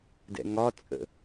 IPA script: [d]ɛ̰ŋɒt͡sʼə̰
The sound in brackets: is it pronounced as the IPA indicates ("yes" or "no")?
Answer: yes